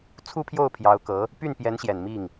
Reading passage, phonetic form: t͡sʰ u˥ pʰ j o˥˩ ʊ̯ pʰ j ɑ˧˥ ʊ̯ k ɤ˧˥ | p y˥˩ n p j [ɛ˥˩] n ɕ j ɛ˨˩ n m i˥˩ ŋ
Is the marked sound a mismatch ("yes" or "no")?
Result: yes